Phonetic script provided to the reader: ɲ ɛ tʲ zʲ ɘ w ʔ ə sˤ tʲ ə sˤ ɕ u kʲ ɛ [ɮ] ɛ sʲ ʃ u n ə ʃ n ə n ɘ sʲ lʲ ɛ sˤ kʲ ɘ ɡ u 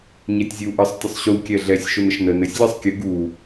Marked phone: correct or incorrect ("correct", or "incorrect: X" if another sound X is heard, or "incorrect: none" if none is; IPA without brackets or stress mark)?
correct